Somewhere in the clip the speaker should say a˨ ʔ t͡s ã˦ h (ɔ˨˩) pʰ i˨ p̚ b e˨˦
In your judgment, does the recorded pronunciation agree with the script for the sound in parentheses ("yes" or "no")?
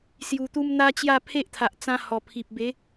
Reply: yes